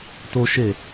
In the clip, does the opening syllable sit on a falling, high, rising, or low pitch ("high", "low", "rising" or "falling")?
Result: high